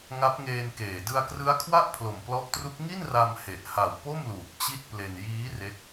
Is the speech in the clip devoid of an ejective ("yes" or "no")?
yes